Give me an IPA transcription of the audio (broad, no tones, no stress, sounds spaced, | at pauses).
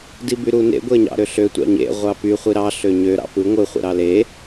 d i b y ɾ u n ḛ ɡʷ e ɲ ɑ̰ ɾ ø ɬ ø tʷ ɑ̰ ɲ ḛ ʁʷ ɑ p y χʷ i ɾ ɑ ɬ ø ɲ ø ɾ ɑ̰ p ɯ ŋʷ ɯ χʷ ḛ ɾ ɑ l e